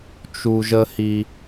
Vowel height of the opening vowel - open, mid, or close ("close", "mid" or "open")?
close